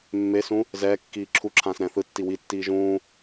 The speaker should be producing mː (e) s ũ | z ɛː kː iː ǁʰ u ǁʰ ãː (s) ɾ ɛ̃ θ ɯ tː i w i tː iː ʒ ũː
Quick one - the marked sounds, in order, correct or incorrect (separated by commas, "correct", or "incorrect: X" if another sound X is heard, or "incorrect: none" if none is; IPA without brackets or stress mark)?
correct, correct